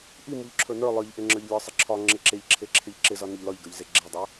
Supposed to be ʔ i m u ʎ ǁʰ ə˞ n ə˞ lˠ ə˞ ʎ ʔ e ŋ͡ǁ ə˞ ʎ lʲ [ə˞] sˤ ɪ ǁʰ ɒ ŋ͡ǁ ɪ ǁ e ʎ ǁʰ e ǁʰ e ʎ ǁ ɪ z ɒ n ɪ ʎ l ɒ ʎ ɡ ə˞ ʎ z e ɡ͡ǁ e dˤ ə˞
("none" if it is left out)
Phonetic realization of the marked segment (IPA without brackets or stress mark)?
ə˞